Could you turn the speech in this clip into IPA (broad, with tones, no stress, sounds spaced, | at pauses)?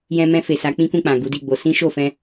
j ɛ̃˧ m ɛ̃˧ f e˨ s a˨˦ k͡p ĩ˦ k ũ˦˨ k͡p ã˨ ɡ u˨˦ d i˦˨ ɡ͡b o˨˦ s ĩ˦ ʃ o˦˨ f ɛ̃˧